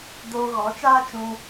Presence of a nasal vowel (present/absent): present